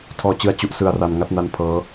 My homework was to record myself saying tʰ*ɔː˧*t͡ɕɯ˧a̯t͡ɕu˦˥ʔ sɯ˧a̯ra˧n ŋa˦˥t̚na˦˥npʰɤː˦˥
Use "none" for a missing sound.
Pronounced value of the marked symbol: ɔː˧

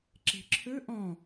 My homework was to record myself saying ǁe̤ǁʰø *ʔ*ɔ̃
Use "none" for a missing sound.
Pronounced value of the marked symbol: ʔ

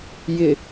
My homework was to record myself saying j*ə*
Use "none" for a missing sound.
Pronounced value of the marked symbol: ɪ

